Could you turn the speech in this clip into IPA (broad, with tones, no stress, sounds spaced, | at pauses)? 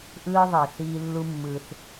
ʔ ɯː˦ ðˤ e˩ θ iː˥ lː u˦ mː ɯː˨ θ